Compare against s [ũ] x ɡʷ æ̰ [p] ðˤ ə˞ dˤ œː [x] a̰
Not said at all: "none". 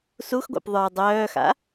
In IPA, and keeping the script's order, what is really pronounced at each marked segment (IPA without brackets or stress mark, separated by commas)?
u, p, x